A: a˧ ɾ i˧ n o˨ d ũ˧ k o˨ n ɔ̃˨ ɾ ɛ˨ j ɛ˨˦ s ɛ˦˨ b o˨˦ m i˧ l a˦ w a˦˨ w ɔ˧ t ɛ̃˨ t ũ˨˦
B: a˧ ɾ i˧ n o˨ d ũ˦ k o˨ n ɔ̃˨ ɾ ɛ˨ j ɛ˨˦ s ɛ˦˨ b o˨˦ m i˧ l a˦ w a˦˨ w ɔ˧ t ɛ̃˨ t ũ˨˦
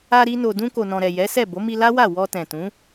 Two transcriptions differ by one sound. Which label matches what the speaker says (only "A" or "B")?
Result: A